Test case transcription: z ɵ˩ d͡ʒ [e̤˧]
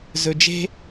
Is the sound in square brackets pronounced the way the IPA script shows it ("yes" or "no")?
yes